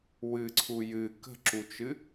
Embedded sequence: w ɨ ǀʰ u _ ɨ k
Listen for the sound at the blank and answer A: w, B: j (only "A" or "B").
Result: B